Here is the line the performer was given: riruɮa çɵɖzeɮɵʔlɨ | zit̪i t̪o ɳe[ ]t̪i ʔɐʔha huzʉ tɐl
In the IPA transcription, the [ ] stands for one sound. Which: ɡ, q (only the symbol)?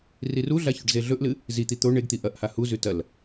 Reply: ɡ